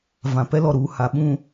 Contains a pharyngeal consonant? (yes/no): no